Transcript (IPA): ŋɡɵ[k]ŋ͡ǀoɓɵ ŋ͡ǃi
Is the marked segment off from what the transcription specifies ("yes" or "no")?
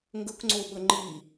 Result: no